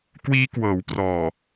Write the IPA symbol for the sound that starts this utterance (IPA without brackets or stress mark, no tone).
k